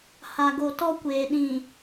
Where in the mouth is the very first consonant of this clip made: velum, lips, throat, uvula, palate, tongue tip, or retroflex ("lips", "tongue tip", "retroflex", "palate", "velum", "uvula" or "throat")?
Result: throat